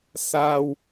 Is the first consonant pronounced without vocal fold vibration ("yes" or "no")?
yes